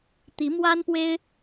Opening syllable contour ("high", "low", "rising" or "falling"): rising